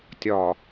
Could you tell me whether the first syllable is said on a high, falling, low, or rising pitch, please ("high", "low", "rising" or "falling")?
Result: low